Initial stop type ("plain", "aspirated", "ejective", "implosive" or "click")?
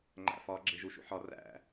click